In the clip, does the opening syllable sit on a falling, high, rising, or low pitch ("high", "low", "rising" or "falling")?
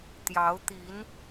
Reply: rising